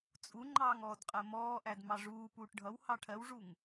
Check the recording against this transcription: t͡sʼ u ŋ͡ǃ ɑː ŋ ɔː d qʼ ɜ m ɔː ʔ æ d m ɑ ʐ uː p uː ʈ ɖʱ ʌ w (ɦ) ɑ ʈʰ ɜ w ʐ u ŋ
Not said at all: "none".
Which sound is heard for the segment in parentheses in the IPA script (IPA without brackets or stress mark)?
h